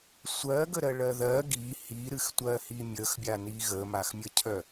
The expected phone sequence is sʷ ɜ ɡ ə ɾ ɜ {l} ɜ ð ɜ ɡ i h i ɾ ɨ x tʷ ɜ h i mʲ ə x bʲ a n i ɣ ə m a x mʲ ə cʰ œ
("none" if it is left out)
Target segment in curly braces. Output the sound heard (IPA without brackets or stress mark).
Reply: ɭ